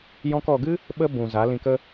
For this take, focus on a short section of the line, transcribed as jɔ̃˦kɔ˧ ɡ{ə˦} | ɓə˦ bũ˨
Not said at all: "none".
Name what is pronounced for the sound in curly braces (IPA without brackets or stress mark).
ɨ˦